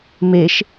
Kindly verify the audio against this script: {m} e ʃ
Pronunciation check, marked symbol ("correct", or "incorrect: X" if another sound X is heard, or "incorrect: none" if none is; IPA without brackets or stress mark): correct